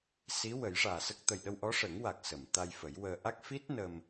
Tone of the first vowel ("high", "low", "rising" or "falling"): rising